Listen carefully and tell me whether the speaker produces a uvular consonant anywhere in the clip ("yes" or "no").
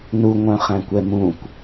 yes